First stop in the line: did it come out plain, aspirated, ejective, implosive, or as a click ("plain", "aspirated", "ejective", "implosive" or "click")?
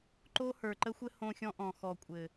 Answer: click